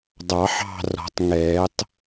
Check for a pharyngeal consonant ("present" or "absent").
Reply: present